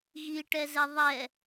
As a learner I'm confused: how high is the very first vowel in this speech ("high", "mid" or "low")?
high